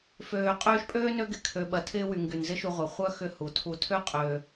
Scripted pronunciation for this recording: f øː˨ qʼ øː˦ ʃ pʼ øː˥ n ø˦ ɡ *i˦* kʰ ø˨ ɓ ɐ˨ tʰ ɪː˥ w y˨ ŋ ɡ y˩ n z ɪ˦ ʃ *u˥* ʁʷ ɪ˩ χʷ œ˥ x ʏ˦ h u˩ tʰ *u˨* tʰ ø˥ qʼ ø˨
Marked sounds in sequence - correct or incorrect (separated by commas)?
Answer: incorrect, incorrect, correct